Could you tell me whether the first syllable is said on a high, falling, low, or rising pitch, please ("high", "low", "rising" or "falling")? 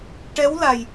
rising